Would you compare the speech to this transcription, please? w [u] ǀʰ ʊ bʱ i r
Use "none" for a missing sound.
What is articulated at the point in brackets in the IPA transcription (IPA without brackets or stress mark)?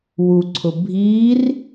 u